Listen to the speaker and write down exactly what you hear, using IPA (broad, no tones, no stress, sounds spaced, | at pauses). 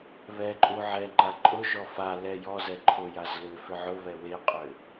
β ɛ ǃʼ u ʕ ɛ ŋ͡ǃ a ǃʼ ʊ ʒ ɔ f a l ɛ j ɔ z ɛ ǃʰ ʊ j a z l ʏ f ʏ ʕ ʊ β ɛ w e qʼ ʏ